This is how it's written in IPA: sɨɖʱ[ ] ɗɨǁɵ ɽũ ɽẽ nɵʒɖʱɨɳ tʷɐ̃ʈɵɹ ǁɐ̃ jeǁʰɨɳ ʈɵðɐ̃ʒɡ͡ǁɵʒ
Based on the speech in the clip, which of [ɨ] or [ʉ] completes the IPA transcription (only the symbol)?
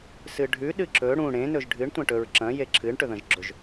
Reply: ʉ